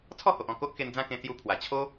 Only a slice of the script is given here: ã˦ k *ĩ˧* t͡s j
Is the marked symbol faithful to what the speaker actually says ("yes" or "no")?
no